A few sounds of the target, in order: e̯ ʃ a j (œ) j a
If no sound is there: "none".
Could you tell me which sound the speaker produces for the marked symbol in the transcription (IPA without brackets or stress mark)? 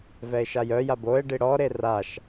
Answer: œ